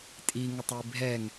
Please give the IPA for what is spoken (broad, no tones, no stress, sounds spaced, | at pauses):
tʼ i ŋ ə tˤ i bʱ ɛ ŋ